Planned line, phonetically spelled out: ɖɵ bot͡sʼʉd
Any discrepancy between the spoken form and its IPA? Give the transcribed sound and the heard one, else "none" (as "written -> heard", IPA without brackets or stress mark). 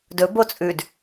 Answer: ɖ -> d